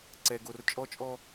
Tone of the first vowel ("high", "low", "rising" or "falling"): low